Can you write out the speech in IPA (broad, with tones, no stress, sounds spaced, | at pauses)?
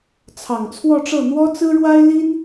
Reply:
t͡sʰ ɑ˨˩ ŋ t͡sʰ w ɔ˥˧ ʈ͡ʂ ɤ˥˩ n̪ w ɔ˥ t͡s ɹ̩˥ ɻ w a˥ ɪ̯ l i˥ n